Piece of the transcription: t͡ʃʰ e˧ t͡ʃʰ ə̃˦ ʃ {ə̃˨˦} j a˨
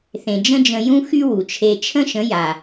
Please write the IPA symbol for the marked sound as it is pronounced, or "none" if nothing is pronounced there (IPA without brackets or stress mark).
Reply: ə̃˨˦